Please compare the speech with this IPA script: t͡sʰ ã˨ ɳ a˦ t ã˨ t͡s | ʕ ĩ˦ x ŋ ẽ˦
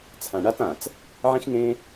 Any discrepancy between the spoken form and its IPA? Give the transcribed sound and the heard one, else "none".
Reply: none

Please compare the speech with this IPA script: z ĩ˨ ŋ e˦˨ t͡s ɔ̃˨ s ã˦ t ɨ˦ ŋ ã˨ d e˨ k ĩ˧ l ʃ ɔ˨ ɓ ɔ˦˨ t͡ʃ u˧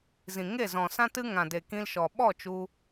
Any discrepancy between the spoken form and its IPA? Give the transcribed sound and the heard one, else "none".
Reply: t͡s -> z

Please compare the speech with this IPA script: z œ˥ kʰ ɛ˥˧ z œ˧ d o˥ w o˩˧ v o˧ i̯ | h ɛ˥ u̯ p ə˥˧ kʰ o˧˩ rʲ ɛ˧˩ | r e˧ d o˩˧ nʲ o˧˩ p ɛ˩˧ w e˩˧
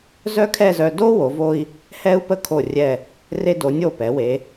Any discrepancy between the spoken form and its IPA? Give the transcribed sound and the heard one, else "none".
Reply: none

